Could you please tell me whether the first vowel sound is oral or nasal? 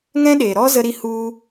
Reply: nasal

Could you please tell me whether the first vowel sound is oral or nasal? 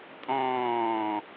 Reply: nasal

